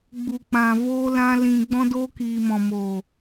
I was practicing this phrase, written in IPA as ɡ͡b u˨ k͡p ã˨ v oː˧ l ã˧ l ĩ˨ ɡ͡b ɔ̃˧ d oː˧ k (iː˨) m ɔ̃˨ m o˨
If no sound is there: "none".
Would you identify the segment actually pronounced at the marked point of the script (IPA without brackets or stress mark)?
iː˨